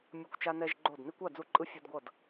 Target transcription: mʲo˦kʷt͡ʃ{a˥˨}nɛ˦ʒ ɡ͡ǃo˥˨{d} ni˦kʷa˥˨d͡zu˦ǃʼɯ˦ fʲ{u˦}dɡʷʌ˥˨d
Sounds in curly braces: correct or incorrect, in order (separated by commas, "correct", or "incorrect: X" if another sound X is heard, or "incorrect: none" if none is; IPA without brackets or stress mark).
incorrect: a˦, correct, correct